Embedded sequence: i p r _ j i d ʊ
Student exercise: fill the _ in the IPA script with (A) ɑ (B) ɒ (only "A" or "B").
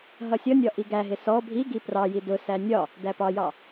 A